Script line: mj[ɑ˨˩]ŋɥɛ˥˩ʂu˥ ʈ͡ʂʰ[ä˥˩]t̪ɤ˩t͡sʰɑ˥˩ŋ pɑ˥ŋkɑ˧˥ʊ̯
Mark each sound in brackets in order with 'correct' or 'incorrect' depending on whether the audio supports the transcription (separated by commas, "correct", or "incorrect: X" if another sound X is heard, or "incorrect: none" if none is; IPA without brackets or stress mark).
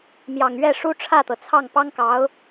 correct, correct